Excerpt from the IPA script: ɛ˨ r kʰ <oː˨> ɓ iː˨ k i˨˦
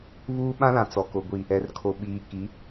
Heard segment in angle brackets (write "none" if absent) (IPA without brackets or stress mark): o˨